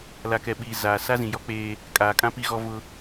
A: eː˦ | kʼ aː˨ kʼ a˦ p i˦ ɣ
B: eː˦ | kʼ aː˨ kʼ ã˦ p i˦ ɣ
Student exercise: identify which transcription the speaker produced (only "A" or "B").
B